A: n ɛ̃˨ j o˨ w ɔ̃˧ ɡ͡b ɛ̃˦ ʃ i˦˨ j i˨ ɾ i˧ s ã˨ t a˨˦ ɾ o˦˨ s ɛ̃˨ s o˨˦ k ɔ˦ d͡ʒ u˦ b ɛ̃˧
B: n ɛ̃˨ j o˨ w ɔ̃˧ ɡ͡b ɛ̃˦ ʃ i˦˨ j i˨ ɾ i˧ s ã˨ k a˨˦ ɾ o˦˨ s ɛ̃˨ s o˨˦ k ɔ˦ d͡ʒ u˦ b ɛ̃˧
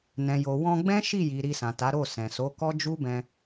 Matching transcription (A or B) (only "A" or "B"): A